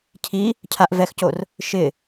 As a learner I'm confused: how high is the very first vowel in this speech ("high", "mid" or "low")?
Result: high